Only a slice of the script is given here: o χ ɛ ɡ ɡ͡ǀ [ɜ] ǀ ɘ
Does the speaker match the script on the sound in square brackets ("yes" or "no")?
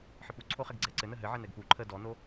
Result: no